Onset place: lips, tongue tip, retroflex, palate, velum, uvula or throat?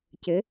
palate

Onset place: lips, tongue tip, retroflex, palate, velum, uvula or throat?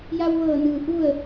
palate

